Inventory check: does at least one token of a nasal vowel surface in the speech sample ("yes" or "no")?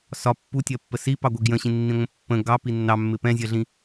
yes